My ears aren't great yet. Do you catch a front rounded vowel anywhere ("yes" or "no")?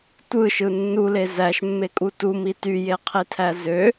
yes